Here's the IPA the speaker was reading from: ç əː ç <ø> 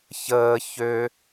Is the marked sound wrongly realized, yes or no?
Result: no